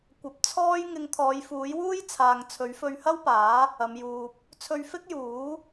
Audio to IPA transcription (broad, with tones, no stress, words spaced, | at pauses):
kʷɐ˨p̚t͡sʰɔː˥j ŋɪ˧ŋt̪ʰɔː˨˧jfuː˨˥j wuː˥jt͡sʰaː˨ŋ t͡sʰɵ˨˥ɥfɵ˧ɥhɐ˥wpaː˨˥ | ɐ˨˧mjuː˧p̚ | t͡sʰɵ˧ɥfɪ˥k̚juː˨˥